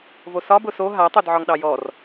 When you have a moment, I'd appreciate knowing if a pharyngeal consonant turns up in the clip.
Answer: yes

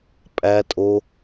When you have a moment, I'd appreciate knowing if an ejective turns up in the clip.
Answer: yes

